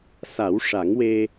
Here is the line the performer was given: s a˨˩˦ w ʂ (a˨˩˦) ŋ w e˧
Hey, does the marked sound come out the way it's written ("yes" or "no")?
yes